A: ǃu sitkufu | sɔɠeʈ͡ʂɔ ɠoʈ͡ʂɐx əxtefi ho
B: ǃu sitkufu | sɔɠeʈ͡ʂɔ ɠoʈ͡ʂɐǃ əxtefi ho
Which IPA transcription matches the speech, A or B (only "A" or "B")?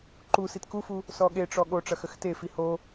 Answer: A